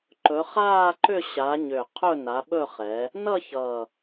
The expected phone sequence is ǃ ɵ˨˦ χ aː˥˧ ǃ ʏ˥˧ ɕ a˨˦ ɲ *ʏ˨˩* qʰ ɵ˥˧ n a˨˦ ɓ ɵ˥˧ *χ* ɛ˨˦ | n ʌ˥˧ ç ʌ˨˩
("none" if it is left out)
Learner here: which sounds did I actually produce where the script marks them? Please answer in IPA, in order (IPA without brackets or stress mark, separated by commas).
ʏ˨˩, χ